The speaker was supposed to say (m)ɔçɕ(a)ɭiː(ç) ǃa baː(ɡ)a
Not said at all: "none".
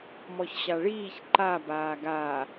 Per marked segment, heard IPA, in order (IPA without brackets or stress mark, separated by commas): m, a, ç, ɡ